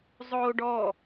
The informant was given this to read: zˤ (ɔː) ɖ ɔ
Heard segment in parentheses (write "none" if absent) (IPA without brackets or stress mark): oː